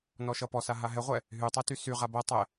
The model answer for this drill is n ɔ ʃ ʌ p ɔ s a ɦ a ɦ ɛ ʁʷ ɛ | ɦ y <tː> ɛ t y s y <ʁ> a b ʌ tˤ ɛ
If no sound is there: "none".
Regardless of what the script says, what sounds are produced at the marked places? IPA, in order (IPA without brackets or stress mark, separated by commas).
tˤ, ʁ